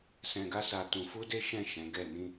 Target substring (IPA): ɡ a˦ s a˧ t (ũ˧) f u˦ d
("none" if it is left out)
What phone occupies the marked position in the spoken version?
ũ˧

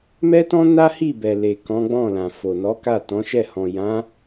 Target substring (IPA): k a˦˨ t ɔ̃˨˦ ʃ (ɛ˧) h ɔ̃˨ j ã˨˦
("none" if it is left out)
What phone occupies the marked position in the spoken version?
ɛ˦˨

